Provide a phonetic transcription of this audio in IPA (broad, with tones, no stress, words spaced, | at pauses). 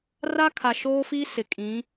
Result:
raː˦kʰa˨ ʃoː˦fi˦sɪ˨kʼĩ˨˦